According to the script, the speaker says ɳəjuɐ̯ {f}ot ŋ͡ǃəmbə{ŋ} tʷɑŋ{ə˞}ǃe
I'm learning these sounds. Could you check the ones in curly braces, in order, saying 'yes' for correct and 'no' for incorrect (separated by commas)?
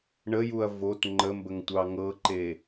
no, yes, no